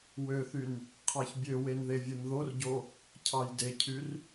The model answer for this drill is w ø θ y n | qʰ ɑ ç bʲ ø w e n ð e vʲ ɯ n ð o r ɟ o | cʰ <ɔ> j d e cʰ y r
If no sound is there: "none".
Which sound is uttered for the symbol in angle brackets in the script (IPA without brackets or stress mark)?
ɑ